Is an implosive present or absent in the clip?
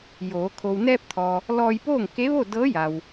absent